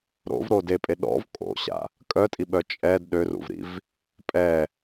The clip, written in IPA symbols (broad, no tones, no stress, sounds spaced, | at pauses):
ɾ o̰ v ɾ o d e pʼ e ɗ ɔ̰ v kʼ o̰ ɕ a̰ | kʼ œ tʼ i ɓ œ t͡ʃʼ ɛ d ɗ ø r ṵ v ɾ ḭ v | pʼ ɛ